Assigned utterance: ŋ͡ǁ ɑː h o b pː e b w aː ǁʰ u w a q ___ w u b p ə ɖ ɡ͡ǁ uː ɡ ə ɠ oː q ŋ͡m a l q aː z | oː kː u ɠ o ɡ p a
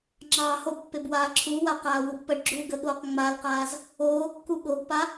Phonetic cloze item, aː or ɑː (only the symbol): aː